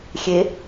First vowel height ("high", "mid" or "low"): mid